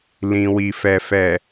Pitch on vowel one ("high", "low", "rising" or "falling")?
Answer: low